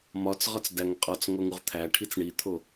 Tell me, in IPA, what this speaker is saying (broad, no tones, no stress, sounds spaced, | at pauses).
m ɒ t͡s ʁ ɒ t͡s d æ ŋ qʼ ɒ t͡s ŋ o ŋ u ʁ t̪ʰ æ ʈʰ i t͡s ɳ i t̪ʰ o